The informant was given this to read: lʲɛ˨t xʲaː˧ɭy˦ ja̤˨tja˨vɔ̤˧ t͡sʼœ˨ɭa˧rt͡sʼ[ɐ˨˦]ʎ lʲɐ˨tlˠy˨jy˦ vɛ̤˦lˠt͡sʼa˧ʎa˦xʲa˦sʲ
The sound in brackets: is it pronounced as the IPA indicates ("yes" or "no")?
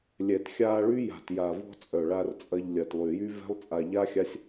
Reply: no